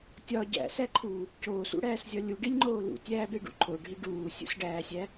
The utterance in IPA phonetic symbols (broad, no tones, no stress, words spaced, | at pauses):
tʲɒ ɟæ̰sæǃʰuː | coːsṵɽæːszʲɒ lʲuɖilʲŋ͡ǃoː lṵtʲæːbeɖṵ ǃʰoɖʱi ɖuːsʲṵsɖæːsʲæ